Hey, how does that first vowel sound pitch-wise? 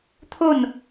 falling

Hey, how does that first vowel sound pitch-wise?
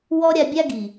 high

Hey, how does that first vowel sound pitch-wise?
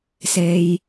low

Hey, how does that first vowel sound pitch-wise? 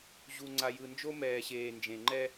low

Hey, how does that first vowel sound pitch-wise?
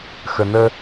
low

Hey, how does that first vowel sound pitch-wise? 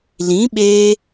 rising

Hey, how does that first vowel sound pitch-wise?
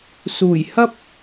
low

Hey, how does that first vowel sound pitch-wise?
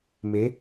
rising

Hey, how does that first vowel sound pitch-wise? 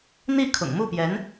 falling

